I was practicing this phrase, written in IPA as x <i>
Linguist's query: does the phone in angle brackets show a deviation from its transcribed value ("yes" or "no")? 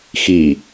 no